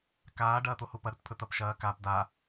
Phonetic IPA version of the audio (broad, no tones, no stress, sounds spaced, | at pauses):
k aː ɖ ɐː t̪ o h u p ɐ ɾ ɵ t pʰ ɵ t̪ ɐ p ʃ ɐː k a p d a